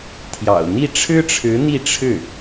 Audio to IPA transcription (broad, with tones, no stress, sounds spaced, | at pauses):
t̪ʰ j ɑ̰˨˩ ʊ̯ n̪ i˥˩ ʈ͡ʂʰ ɻ̩˥ ʈ͡ʂʰ ɻ̩˧˥ n̪ i˥˧ ʈ͡ʂʰ ɻ̩˥˩